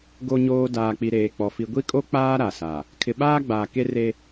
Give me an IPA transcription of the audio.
ɡo˨ɲoː˨ daː˨k͡pi˨ɾeː˨ k͡pɔ˨ fi˨ ɡʷi˦kʼo˦ k͡paː˦ ɾa˨sa˨ | kʰɪ˨ɓaː˦ ɡ͡baː˨ ke˦re˦

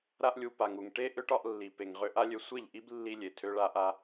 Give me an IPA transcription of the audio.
ɾa˧ʔlʲu˨ pa˨ŋu˨ŋ ʈe˦ ʔø˦ʈɒ˧ʔlːi˨ pe˨ŋ ʁø˧ʔa˦lʲø˧ sʷe˦˨ʎʔi˦b lːi˦lʲe˨ tʰø˦ɭa˦ʔa˦

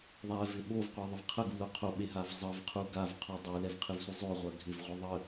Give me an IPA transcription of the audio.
ðˤɛvɪ ɓovqʷɛðˤɨv qʰəɡulo qʰoɓeɦav zˤəvqʰu ɡavqʰo dˤulɛvqʰɨvsʷɪ zˤoʁʷɜ ɡʱɪvʁʷə ðˤə

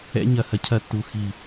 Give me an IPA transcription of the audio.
ɛ̰˧ɲɐ˨ hɐ˨cʰɐ˧tːu˨ xi˨

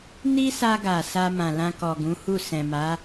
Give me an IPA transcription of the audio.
ni˦sa˧ɡa˨ sa˧mã˨ lã˧kɔ˨ɡũ˨˦hu˦˨ sɛ̃˨ma˨˦

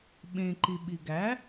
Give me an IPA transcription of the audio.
ɓẽ ǃiɓiɡæ

